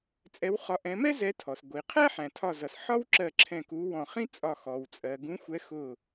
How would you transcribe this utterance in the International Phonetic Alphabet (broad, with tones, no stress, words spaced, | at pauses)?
t͡sʼɛ˨˦wχɒ˨˦ʔɛ̃˨˦ mɛ˥zɛ˨˦ tʰɔ˩s ɡʷi˩ qʰæ˥ħæ̃˩tʰɒ˧˩zʌ˩s ħɒ˥w ǁɜ˧˩ ǁʰɛ̃˧˩ku˨˦ wɔ̃˧˩ χĩ˥ t͡sʼɒ˧˩ xɔ˩wt͡sʼɜ˩ ɡũ˨˦xʷɛ˨˦ xʊ˧˩